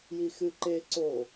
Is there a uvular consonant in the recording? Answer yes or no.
no